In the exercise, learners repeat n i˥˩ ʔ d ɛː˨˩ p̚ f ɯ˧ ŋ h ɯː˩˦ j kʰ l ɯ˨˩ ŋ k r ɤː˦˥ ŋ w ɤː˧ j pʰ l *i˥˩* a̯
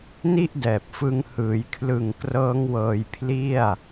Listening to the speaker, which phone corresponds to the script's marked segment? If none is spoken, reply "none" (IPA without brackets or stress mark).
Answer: i˥˩